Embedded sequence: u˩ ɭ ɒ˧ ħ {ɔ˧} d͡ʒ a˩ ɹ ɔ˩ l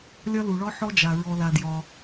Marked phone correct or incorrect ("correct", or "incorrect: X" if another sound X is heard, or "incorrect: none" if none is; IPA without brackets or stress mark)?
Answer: correct